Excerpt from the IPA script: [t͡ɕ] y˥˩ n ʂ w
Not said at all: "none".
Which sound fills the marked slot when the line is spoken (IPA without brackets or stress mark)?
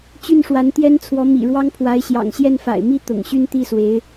t͡ɕ